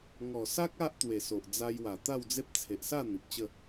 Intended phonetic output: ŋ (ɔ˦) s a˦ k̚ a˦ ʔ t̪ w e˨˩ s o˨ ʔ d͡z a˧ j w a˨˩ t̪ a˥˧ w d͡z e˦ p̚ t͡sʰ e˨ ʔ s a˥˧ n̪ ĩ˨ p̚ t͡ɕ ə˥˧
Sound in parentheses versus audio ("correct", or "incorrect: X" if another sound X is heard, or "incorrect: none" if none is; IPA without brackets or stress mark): incorrect: ɔ˨˩